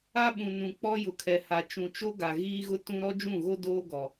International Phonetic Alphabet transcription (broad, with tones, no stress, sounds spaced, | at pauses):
a˦ ɓ ũ˨ n ũ˨ k͡p ɔ˦ j ʊ˨ kʰ ɛ˨ h a˨ t͡ʃ ũ˨ t͡ʃ o˦ ɡ a˨ ɣ iː˦ ɣ ʊ˦ t ũ˦ ɾ ɔ˦ d͡ʒ ũ˦˨ ɣ o˦ d oː˦ ɡ ɔ˨